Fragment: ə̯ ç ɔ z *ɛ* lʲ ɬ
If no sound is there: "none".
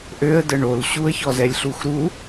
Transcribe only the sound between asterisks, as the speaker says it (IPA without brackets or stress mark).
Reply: ɛ